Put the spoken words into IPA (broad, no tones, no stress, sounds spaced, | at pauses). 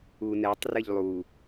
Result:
u n ɛ tˤ r ɘ ʎ lˠ u